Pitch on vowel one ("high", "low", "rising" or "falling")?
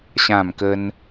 falling